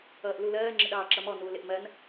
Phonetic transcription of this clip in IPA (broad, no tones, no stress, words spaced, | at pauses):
ʌːʔlulɜː ŋ͡ǁɪɗɑːǁʌmɔ nuːlɪʔmɜn